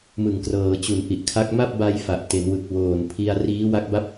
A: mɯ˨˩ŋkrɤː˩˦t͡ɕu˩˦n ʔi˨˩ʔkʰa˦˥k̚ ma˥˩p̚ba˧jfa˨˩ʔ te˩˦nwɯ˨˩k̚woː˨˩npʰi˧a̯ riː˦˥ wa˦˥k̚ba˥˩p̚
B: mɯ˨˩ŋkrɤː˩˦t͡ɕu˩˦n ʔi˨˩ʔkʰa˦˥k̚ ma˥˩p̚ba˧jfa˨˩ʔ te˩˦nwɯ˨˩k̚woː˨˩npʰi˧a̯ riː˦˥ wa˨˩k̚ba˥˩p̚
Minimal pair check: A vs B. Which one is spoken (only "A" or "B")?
A